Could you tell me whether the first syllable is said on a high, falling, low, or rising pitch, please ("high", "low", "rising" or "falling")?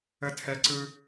high